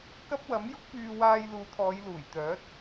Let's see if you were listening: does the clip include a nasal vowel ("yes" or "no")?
no